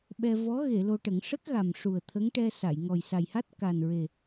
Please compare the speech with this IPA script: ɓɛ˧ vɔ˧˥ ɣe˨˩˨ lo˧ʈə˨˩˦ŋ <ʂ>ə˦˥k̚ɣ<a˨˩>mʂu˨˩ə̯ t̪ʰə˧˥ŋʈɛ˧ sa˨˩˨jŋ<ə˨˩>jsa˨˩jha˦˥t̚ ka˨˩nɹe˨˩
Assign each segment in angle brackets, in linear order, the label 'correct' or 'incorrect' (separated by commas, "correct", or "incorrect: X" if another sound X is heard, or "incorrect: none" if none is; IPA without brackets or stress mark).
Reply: correct, correct, incorrect: ɔ˨˩